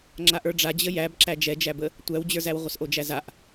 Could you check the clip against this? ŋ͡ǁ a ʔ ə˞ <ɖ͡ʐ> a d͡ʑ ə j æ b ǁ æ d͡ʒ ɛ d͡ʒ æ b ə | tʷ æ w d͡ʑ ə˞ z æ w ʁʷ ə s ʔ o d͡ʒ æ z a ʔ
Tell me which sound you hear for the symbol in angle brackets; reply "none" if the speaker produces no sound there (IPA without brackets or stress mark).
ɖ͡ʐ